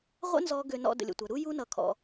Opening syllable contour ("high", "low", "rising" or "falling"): high